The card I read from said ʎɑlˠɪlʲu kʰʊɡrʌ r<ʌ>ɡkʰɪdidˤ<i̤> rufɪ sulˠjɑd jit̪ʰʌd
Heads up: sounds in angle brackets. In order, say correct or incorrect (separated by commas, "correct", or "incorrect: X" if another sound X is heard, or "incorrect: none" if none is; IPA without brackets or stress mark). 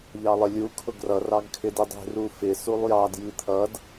incorrect: ɑ, correct